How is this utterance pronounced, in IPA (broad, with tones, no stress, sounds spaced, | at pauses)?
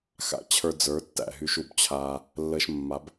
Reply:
x a̰˦ t͡ɕʰ ə˞˧ d͡z ə˞˨˦ tː æ̰˨ ɦ y˧ ʃ u˨ b t͡ɕʰ aː˧ | lː əː˧ ʃ mː a˨˦ b